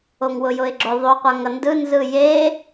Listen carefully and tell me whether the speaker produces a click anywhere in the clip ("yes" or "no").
yes